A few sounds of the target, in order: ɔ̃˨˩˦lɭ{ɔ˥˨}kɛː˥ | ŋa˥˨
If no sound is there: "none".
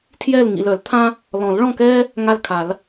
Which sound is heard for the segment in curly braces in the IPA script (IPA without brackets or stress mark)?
ɔ̃˥˨